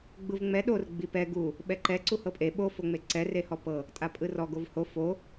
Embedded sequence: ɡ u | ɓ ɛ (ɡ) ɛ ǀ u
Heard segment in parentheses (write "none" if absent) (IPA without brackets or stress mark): ǃ